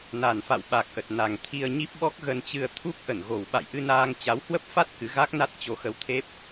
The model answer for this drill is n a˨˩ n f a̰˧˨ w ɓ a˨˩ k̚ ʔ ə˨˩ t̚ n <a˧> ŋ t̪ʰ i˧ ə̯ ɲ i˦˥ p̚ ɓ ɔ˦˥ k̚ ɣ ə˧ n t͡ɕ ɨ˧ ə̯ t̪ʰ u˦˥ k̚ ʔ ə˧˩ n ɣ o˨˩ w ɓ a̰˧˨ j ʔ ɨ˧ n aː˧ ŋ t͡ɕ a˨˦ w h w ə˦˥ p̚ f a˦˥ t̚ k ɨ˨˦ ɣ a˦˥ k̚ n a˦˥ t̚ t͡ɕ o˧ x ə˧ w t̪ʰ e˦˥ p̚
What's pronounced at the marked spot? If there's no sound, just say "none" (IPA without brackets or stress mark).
a˨˩